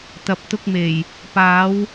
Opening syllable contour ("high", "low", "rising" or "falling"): low